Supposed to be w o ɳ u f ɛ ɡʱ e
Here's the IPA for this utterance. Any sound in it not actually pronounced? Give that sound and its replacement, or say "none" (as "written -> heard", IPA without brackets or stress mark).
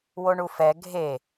none